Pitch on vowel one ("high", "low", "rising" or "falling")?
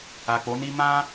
low